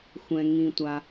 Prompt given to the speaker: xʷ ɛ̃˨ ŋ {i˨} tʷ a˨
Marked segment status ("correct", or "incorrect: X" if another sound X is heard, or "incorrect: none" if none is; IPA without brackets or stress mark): incorrect: ĩ˨